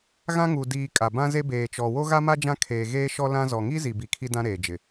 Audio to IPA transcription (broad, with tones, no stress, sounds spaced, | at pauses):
ɣ ã˦ ŋ uː˨ d iː˨ kʼ a˨ b ã˦ z e˦ b eː˨ t͡ʃ ɔ˨ w o˦ ɣ a˦ m a˦ d͡ʒ ã˦ kʰ eː˨ ɣ eː˦ ʃ ɔ˦ l ã˦ z ɔ˨ ŋ i˦ z i˨ b i˨ kʰ i˦ d ã˦ ɾ eː˨ d͡ʒ ɪ˨